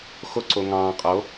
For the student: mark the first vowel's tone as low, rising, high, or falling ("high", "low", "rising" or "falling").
high